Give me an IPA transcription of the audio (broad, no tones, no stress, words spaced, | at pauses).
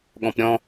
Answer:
ɠɔ̃pɾʲɔ̃